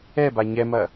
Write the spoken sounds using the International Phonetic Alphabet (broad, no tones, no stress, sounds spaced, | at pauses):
ɛ b a ɲ ɛ m ɐ